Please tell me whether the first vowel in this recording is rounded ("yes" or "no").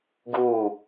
yes